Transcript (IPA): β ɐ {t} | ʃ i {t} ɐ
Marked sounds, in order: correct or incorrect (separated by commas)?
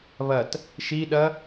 correct, incorrect